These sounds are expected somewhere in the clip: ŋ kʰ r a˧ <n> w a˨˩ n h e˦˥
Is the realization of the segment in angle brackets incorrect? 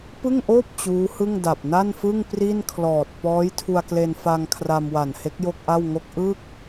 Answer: yes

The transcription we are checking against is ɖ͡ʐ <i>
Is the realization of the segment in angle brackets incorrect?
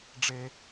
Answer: yes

